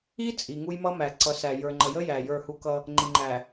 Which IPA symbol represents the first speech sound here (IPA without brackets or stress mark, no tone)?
i